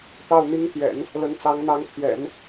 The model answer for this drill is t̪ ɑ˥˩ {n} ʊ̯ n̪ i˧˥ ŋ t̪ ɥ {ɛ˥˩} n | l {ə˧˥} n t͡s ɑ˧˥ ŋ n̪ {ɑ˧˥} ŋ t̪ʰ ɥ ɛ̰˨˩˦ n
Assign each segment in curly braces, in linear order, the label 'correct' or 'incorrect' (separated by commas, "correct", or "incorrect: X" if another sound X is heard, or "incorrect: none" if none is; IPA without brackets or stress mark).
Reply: incorrect: none, incorrect: ɛ̰˨˩˦, correct, correct